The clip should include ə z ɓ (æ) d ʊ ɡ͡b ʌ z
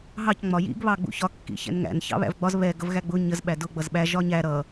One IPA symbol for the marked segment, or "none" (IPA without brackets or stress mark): æ